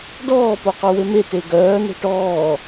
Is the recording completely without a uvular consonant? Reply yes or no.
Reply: no